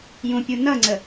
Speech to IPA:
j ũ pʲ u n ʌ ŋ͡ǀ ə

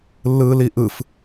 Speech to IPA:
lː ɯː l i ʔ ɯ f

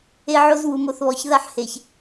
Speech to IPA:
e˦ ʕ o˦ z w u˨ m o˨ θ β ɔ˨ ç ð a˦ ħ h e˨ ç

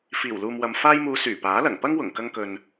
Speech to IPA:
f iː˨˩ w l uː˨ m w ɐ˨ m f aː˧ j m uː˨˧ s yː˨˩ p aː˨˥ l ɐ˨˩ ŋ p ɐ˥ ŋ w ʊ˨˩ ŋ k ɐ˧ ŋ k ɵ˨ n

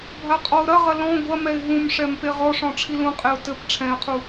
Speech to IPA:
bʱ a qʼ ɔ ʊ̯ ɾ ɐ ʁ ɐ l ɔ̃ ɡʷ ɐ m ɛ ɪ̯ ɦ ũ m ʂ ɛ m p e ʁ ɔ ʂ ɔ̃ ʈ͡ʂʰ i l ũ qʼ e ʊ̯ t ɘ p ʈ͡ʂʰ ɛ̃ ɪ̯ qʰ u

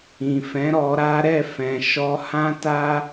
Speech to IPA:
ĩ˨ f ɛ̃˨˦ ɾ ɔ˧ ɾ a˦ ɾ ɛ˦˨ f ɛ̃˨ ʃ ɔ˧ h ã˦ t a˦

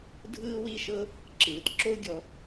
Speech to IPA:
dʱ ɯː˦ w i˦ ʃ ɤ˦ | ǁ ɯː˨ t ǁ o˦ u̯ ɡʲ ɔ˧

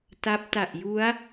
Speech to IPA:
t a˦˥ p̚ t a˨˩ ʔ j u˦˥ a̯

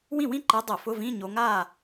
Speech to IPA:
w ĩ˥˩ w ĩ˥˧ ǃ e˨˦ dˤ ʊ˧˩˧ f ʊ˧˥˧ v ĩ˧˥˧ ɲ o˨˦ ŋ aː˥˩

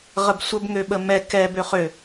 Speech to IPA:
ʁ ə b sʷ ə b ŋ ø ɓ ə m ɛ k ɛ b ø χ ø

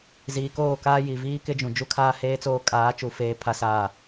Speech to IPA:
z iː˨ k oː˦˨ k aː˦ j i˨ v iː˦ k ɪ˦ d͡ʒ ũ˨ d͡ʒ u˦ kʰ aː˦ h eː˦ t͡s oː˦ kʼ aː˨˦ t͡ʃ u˨ f eː˦ pʰ a˦ s aː˦˨

